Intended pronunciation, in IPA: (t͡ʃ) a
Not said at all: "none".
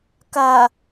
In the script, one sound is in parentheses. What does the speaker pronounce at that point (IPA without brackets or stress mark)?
k